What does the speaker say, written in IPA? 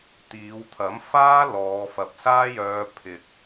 t̪ iː˨˧ w t̪ʰ ɐ˨˥ m f aː˥ l ɔː˨˧ f ɐ˨ p̚ s aː˥ j œː˧ pʰ ɪ˨ k̚

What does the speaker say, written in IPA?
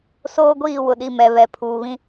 s oː˦ ɡʷ iː˦˨ w ʊ˨ ɗ i˨ m ɛ˨ β ɛ˨ pʰ uː˨ β ĩ˦

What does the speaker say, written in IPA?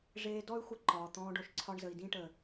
ʐ eː˧ d ɔ˦ y̯ xʷ ə˦˨ ǃ ɒː˨ t̪ ɔ̃ː˧ ɖ o˨ ʃ ǀʰ ɒ˦ ɳ z ə˧ i̯ d ĩ˧ ʈ ə˨

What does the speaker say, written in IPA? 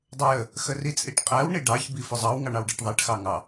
dˤ ʊ j ə | x ə r i t͡sʼ i ʈ qʼ æ w ɳ i ɖ ɑ ç b i f ʊ zˤ ɑ w ŋ ɑ ɳ ɑ w ɖ ɛ ʈ ðˤ ɛ ʈ x ɑ ŋ ɑ

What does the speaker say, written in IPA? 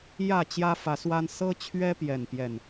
j ä˥˨ t͡ɕ j ä˦ f ä˨˦ s w a˦ n s ɤ˦ t͡ɕʰ ɥ ɛ˦ p j ɛ˥˨ n p j ɛ˥˨ n

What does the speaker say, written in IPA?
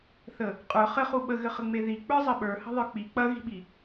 θ ə | qʼ ə˞ χ ɘ χ u ɓ ə ɣ ɘ χ ə ŋ͡m e ð i k͡p ə˞ zˤ ɘ ɓ ə˞ h ə̤ ðˤ ə˞ k͡p i k͡p ɐ ɣ i̤ ɓ i

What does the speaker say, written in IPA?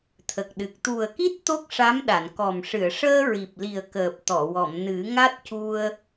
t̪ʰ ə˨˩ k̚ ɗ ɨ˨˩ k̚ t̪ u˨˩ ə̯ k i˦˥ t̚ t̪ o˦˥ k̚ ʂ a˧˥ m ɗ a˨˩˨ n k ɔ˨˩ m ʂ ɨ˨˩˨ ə̯ ʂ əː˧ ɹ i˨˩ p̚ l i˨˩ ə̯ k əː˨˩ p̚ t̪ ɔ˨˩˨ w ɔ˨˩˨ m n ɨ˨˩˦ ŋ a˦˥ t̚ c u˧ ə̯

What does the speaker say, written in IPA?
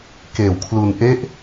k eː˨˩ w kʰ l u˧ n ʔ e˦˥ ʔ

